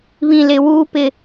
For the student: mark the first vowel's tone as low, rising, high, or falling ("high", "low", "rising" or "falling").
low